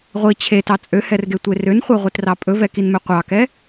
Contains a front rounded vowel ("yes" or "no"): yes